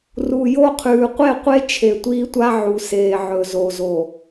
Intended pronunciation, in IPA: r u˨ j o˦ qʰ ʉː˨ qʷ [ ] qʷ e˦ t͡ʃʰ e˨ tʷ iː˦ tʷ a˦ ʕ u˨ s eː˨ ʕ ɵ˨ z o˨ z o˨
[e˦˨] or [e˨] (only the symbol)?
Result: e˦˨